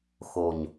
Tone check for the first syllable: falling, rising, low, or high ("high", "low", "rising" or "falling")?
low